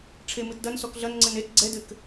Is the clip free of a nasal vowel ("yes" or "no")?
yes